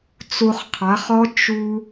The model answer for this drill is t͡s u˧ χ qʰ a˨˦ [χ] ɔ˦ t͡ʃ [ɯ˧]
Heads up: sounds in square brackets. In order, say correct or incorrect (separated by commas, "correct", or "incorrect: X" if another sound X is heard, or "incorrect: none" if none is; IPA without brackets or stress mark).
correct, incorrect: u˧